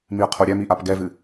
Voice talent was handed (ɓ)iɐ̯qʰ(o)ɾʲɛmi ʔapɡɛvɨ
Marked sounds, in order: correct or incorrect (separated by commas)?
incorrect, correct